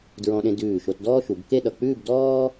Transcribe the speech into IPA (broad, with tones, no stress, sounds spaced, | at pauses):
d ɹ ɔ̃˧ ɗ ẽ˧ d ʉː˧˩ ʃ o˧ t d ɔː˥ ʃ u˩˧ b k e˥˧ ɗ ʌ˧˩ k͡p ʉː˥˧ b d ɔː˥